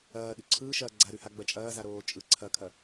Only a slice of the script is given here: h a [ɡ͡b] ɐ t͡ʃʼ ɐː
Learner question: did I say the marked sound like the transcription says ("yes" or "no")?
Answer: yes